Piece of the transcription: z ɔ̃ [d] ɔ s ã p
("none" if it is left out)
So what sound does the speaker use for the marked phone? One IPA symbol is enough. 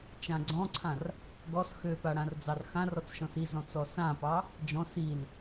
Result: t͡s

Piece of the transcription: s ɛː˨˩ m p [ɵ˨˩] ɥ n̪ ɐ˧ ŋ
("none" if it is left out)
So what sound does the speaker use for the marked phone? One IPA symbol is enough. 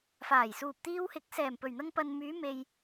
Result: ɵ˨˩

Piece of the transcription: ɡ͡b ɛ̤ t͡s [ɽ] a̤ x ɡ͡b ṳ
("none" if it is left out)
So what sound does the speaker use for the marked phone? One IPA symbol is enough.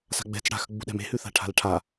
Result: ɽ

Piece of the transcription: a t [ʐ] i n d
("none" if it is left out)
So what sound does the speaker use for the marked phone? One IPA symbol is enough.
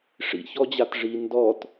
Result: ʐ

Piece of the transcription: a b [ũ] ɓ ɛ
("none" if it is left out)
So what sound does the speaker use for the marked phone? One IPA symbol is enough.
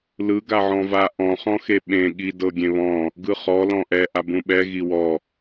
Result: ũ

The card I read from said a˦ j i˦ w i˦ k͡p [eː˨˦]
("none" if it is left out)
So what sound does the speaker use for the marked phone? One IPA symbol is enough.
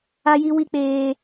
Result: eː˦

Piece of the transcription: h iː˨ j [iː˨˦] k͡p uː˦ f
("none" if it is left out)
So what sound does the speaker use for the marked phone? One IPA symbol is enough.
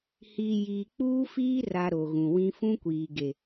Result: iː˨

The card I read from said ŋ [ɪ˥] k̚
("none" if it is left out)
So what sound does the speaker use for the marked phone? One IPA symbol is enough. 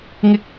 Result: ɪ˥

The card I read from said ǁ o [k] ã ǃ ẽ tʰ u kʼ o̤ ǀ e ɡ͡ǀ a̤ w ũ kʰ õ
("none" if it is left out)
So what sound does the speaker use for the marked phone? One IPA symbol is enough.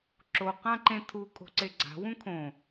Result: q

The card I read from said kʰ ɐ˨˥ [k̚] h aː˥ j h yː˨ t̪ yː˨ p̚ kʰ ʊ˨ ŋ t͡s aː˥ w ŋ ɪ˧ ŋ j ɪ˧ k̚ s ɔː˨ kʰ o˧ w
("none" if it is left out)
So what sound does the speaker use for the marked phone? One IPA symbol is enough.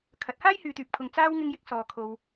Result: t̚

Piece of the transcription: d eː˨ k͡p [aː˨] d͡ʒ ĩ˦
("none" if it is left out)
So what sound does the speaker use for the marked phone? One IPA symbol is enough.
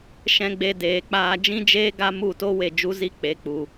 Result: aː˧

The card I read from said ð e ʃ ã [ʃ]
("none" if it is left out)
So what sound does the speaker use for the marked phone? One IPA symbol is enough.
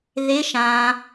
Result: none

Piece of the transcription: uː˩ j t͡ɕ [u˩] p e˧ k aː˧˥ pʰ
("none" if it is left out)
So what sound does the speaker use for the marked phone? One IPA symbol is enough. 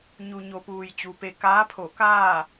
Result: u˩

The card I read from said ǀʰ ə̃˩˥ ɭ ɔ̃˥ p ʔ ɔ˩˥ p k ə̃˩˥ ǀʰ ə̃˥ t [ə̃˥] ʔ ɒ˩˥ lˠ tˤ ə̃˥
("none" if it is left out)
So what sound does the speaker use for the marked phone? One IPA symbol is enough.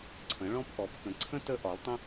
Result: ə˥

